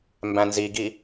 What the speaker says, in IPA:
m b æ̃ n z i ɡ i

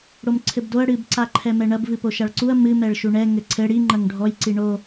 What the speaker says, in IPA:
ɽ o m ǀʰ ɘ b d o ɐ̯ ɽ ɨ b ǀ a ǃʰ ɛ m ɛ ɳ ɐ b v ɨ p o ʃ a ɭ ǀ u ɐ̯ m ɨ m ɛ ɭ ʃ u ɳ ɛ ŋ ɘ ǀʰ ɘ ɽ i ŋ͡ǃ ɐ ŋ ɖʱ ɔ j ǀ i ɳ o

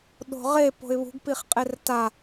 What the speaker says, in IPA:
ɗ o̤ ʁ e p o̤ ɪ̯ β ṳ ɡ p i χ qʼ e r t a

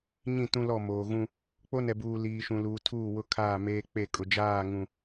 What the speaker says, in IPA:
ɲ ĩ˦˨ t ũ˦ l ɔ˦˨ m oː˨ ɣ ũ˦ | k͡p o˦ n ɛ˨ b uː˨ l iː˨ ʃ ũ˨ l uː˨ tʰ uː˦˨ w ʊ˦ kʰ aː˦˨ m eː˦ k͡p e˦˨ kʼ ʊ˨ d͡ʒ aː˦˨ ŋ ũ˨

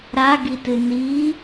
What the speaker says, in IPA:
ɾ a ɡ i t ɨ n i

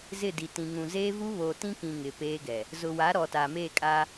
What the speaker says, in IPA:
z ɪ˦˨ d i˨ t ĩ˨ ŋ ũ˨ z eː˦ v u˦ β o˨ t ĩ˦ k ĩ˨ ŋ ɪ˨ p eː˦ ɡ ɛ˨ | z ʊ˨ w a˨˦ ɾ ɔ˨ t a˨ m eː˦˨ kʼ aː˦

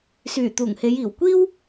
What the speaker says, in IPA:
s yː˨˩ t̪ uː˨˩ ŋ h e˨˧ j iː˨˩ w kʷ iː˥ w

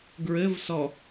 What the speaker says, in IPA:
ɡ ɹ ɘ v s ɔ

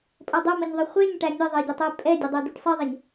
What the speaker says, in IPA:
pʼ ʌ dˤ ə m ə ɲ ðˤ ə χʷ ɛ ɲ ʈ æ nʲ ʌ ðˤ ɜ ɟ ʌ tˤ ɛ pʼ ɛ dʲ ɛ dˤ ɛ d̪ u ʈ sˤ i ðˤ ɛ ɲ

